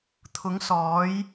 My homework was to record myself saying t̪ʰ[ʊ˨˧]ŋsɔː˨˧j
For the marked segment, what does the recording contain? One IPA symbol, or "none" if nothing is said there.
ʊ˨˧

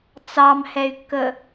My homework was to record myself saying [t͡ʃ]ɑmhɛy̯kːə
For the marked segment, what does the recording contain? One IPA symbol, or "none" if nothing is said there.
t͡s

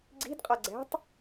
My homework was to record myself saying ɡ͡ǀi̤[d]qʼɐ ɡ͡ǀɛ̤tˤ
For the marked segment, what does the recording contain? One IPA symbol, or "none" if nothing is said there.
d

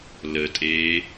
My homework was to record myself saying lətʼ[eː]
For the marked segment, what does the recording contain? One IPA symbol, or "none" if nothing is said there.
eː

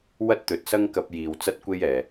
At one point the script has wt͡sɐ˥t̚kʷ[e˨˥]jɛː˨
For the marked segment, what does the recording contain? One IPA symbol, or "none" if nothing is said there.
e˥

